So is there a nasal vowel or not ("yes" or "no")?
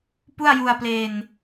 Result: no